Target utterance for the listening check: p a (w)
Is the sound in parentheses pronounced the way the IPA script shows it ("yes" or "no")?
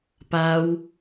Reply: yes